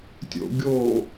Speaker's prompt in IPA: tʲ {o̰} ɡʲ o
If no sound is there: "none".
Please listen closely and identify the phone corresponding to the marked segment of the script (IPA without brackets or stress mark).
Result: o̰